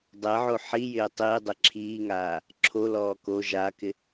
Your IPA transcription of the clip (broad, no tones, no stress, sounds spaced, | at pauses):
dˤ ɛ ʕ o ħ i j ɪː tˤ iː dˤ e ǁʰ iː ŋ aː | ǁʰ o l ɔː k o ʒ a k ɪ